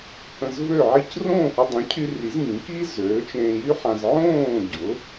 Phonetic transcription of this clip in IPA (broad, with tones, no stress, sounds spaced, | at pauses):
h ə̃˧ z v ø˥˩ ʕ i˥˩ c r õː˥˩ h y˧ dˤ ĩ˩˥ cʰ y˧ r i˩˥ z ŋ ĩ˩˥ k i˥ z øː˩˥ t͡ʃ ẽː˧ j y˥ ħ ã˧ z ʕ õː˥˩ ɟ ʊ˩˥